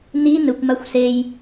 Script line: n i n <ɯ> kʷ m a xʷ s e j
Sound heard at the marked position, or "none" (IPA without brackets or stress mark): ɯ